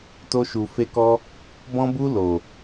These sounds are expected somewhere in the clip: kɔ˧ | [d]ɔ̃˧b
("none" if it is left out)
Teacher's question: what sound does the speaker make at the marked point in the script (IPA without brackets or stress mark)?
b